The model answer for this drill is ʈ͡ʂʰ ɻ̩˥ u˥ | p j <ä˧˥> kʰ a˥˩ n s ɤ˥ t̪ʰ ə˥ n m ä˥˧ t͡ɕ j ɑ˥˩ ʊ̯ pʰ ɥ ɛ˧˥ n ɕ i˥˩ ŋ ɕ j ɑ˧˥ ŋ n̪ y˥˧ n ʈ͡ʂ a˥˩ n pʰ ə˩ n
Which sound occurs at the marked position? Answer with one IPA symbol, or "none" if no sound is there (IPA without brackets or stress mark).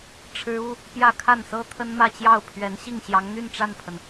ä˥˧